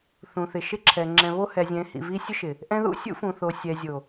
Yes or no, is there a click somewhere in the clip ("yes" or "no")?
yes